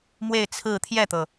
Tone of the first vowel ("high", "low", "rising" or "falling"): falling